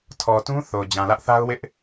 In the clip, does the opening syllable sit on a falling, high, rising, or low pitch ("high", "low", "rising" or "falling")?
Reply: low